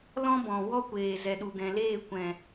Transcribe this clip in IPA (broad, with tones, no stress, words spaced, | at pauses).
lɔ̃˦bɔ̃˨ wɔ˦kʷeː˨ zɛ˨ɗu˨ɡɛ̃˨leː˦˨ kʷɛ̃˨